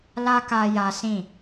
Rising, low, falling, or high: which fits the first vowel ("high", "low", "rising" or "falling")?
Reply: high